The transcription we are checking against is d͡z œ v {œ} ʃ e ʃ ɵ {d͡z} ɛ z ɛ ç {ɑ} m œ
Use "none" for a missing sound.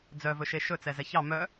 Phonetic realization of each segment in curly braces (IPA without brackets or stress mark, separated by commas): ɵ, t͡s, ɑ